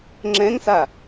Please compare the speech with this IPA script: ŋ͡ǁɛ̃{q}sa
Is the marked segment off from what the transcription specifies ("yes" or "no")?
yes